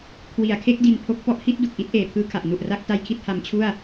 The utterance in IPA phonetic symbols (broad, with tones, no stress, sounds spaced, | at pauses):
kʰ w i˩˦ a̯ kʰ e˦˥ k̚ d i˧ n pʰ o˦˥ k̚ p ɔ˦˥ ʔ h i˦˥ t̚ d u˨˩ k̚ ʔ i˦˥ t̚ ʔ eː˨˩ pʰ ɯː˦˥ kʰ a˨˩ ʔ n u˨˩ ʔ r a˦˥ k̚ t a˧ j kʰ i˥˩ t̚ h a˧ m t͡ɕʰ u˥˩ a̯